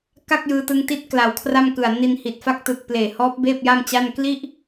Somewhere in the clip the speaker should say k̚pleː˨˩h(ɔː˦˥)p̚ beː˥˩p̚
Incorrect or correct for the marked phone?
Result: correct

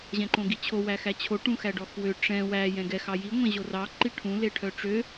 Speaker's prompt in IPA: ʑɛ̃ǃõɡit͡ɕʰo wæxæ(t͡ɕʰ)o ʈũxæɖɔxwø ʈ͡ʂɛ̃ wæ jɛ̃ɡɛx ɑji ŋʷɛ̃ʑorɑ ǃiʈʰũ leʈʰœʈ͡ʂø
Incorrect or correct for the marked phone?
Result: correct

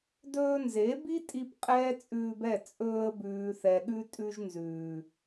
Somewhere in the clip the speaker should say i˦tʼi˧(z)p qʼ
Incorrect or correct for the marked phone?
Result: incorrect: none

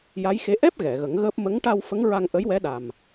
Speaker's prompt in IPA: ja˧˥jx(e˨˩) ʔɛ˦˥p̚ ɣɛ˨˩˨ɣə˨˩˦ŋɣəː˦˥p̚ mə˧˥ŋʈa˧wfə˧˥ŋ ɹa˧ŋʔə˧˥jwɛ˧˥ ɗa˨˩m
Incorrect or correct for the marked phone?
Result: incorrect: e˧˥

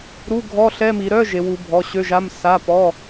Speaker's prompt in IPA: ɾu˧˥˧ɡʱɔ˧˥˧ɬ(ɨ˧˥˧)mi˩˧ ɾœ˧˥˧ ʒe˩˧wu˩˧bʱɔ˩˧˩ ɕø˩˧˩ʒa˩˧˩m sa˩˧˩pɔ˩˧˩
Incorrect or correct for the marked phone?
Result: incorrect: ɛ˧˥˧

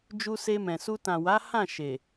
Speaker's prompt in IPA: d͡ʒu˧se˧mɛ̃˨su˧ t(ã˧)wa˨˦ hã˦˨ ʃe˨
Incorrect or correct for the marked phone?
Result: incorrect: ã˨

